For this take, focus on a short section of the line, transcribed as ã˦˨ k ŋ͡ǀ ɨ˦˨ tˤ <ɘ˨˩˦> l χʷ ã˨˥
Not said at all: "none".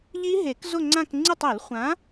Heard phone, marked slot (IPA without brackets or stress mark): ɘ˨˩˦